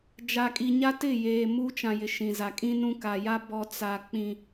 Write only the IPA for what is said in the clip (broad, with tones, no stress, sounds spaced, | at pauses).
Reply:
d͡ʒ a˨ kʼ i˨ ɲ a˦ t ɪ˦˨ j eː˨ m u˦ t͡ʃ ã˨ j ɪ˨ ʃ ĩ˨ z a˨ kʼ ĩ˦ n ũ˦ k a˨ j a˦ b ɔ˦ t͡s a˦ k͡p ĩ˦